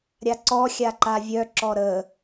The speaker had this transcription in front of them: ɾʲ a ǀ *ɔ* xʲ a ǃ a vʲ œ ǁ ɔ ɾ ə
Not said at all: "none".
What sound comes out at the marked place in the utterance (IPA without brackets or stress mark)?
ɔ